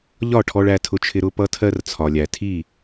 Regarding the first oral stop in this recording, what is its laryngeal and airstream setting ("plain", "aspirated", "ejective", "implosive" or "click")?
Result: aspirated